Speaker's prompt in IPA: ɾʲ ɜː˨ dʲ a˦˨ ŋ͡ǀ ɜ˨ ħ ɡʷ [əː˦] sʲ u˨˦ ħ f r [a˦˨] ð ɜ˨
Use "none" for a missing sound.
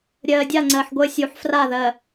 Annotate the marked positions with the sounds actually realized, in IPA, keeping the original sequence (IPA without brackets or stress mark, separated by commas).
əː˦, a˦˨